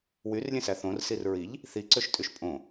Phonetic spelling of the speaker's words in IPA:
wyrlʲẽsæ θõrsir ɹiʎ | θiǀøʃtʼyʃ pʼõ

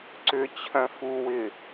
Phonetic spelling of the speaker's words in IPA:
ǀʏ t͡ɕʰœ̃fuwɪ

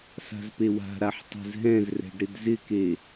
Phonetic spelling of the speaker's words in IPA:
sa̤zpewa̤ɾaħ tˤɛ̤zɦɛ̃zrɛ̤ɖ ɾɪdzɪke

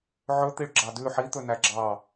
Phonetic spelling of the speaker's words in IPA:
ʕɵ t̪iɭɡ͡ǁɑdʉ ħit̪ɵ næɡ͡ǁɑ

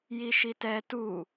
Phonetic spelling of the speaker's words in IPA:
jiʃitɛ tu

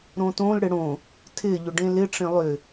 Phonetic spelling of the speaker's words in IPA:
ɾõtõl ɽɪɽõ | tʰɪ ʎʏɖẽlɪʈ͡ʂẽ lˠʏ

